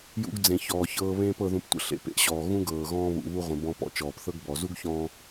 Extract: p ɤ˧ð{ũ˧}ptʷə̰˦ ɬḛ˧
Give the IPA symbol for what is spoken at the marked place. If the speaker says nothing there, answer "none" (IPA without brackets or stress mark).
ũ˧